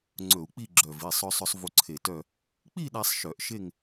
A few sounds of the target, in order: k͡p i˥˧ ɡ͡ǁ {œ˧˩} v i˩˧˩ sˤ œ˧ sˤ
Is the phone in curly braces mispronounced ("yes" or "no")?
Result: no